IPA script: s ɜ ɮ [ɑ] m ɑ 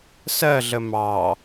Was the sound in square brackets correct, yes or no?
no